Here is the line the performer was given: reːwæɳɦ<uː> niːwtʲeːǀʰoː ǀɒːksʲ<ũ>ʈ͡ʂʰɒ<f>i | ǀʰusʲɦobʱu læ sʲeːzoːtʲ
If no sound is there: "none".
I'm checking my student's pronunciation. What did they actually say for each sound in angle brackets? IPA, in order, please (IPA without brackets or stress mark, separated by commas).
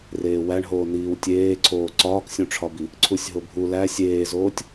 oː, ũ, b